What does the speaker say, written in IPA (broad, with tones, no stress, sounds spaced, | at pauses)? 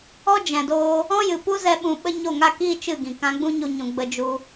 ɔ˦ d͡ʒ ɛ̃˨ d oː˧ | ɔ̃˦ j ɨ˨ p u˦ z ɛ˧ ɓ ũ˧ ɓ ə˦ ɲ o˦˨ ŋ a˦ k iː˦ t͡ʃ ɨ˦˨ ɡ ĩ˨ k ã˧ ɡ͡b ũ˦ ɲ u˧ ɲ ũ˨ ɡ͡b ə˧ d͡ʒ u˧